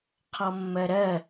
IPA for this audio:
qʰ ɔ mː ɜ ɾ ɜ

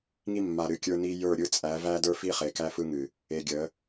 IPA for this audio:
ŋ i˦ mː a˨ ɾ ɨ˨ kʲ ə˞˦ n i˦ j ə˞˦˨ ɾʲ ɯ˦ t͡sʼ æ˨˦ v æ˦ d ə˞˦ f i˦ χ e˨ k æ˦ f ɯ˦ ŋ ɨ˨ | e˨ ɡʲ ə˨˦

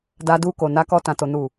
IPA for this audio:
d a˧ d u˧ k o˨ n a˧ k ɔ˧ t ã˨ t o˨ n u˨

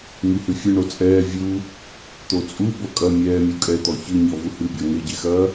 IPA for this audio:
ŋ i h ɨ fʲ ɐ ɳ o t͡sʼ ɛː vʲ u | t̪ o t͡sʼ u b o kʼ ɐ mʲ ɛː mʲ u kʼ ɛ t̪ ɔ ç ɨ ɲ ɔ v u h ɨ bʲ ɔ ŋ e ɟ e x ɐː

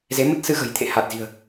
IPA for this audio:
z e˨˦ m ə˦˥ t̚ s ɨ˧ ɣ ə̤˨˩ j t̪ʰ ḛ˧˨ h a˨˩ t̚ z i̤˨˩ ə̯

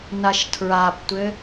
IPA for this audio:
n a ʃ tʰ ɹ a p tʷ ɘ

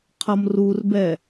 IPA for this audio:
qʰ ʌ m r u r b ɛ

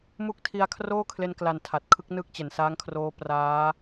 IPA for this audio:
m u˦˥ k̚ tʰ i˧ a̯ kʰ r oː˥˩ kʰ l e˧ n k l a˨˩ n tʰ a˨˩ t̚ kʰ ɯ˦˥ k̚ n ɯ˥˩ k̚ t͡ɕ e˨˩ n s aː˦˥ ŋ kʰ r oː˦˥ p r aː˦˥

